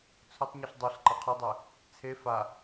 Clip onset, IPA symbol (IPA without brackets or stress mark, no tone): t͡sʰ